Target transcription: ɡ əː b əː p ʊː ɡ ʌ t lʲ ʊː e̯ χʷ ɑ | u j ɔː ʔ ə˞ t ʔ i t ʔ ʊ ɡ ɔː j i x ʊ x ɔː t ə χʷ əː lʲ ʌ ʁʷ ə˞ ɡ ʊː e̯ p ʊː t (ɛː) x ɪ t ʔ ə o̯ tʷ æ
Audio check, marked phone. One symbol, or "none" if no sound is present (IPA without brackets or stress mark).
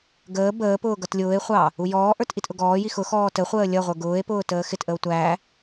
əː